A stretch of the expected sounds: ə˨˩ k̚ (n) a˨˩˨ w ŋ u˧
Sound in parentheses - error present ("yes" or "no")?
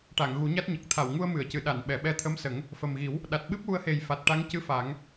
yes